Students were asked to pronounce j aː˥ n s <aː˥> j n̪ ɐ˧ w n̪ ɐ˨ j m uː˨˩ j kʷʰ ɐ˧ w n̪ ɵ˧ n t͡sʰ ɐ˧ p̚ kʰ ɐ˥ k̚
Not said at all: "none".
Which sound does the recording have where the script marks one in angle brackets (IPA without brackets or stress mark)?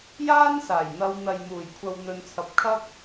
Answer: aː˨˩